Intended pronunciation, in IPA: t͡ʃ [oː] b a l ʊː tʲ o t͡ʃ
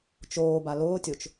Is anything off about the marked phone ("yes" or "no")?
no